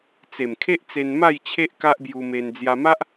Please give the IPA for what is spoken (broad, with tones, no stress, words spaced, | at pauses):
t͡se˨˩mkʰe˦ʔ t͡se˧nma˥˧jt͡ɕʰe˦ʔ ka˦ʔbju˧me˧n d͡zja˧ma˦ʔ